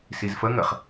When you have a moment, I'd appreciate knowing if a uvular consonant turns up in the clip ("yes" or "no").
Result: yes